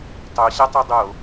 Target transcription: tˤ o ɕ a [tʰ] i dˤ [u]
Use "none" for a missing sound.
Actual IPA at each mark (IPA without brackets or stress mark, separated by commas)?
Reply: tˤ, o